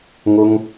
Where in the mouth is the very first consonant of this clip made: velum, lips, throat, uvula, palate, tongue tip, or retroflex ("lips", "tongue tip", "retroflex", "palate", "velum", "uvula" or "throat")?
velum